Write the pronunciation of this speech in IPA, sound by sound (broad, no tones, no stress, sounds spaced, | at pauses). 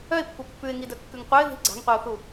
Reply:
œ ɪ̯ pː u pː ʉ ɪ̯ ŋ i d œ kː ʉ ŋ qʷ œ ɪ̯ ð i̤ ɡ͡ǀ a̤ ŋ qʷ i ʊ̯ θ u